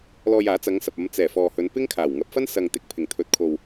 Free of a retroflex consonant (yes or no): yes